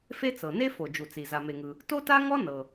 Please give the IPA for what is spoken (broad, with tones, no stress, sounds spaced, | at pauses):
f e˥ t͡s ɤ˩ n e˥ f o˩ d͡ʒ u˩ t͡s i˩ z a˩ m e˩ ŋ ɯ˩ | t o˥ t a˥ ŋ ɔ˥ n ɤ˩